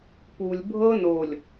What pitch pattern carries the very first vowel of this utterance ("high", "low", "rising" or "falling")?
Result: low